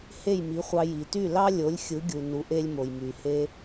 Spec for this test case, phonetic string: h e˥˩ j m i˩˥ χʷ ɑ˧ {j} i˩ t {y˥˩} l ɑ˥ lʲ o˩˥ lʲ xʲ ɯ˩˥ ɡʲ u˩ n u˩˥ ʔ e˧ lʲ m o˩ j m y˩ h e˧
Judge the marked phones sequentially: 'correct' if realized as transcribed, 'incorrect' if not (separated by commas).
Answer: correct, correct